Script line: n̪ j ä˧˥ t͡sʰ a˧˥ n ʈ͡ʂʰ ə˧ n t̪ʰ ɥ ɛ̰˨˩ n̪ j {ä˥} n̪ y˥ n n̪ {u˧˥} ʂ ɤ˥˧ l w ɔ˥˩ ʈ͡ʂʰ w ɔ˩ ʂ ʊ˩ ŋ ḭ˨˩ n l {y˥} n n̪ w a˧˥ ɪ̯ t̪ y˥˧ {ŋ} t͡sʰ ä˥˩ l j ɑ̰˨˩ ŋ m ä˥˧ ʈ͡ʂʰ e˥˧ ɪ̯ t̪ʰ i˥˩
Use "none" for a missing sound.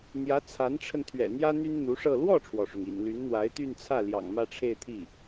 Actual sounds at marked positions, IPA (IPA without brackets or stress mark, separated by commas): ä˥, u˧˥, y˧˥, n